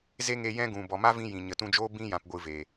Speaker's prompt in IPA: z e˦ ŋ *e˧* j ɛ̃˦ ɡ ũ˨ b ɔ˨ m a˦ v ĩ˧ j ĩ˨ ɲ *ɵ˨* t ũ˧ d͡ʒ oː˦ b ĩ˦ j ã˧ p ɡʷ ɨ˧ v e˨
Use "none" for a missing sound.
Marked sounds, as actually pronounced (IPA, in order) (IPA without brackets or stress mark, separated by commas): e˧, ə˨